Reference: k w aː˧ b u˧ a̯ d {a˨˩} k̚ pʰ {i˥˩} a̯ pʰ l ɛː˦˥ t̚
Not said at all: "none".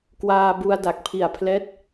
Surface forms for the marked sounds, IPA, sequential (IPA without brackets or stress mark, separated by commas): a˨˩, i˨˩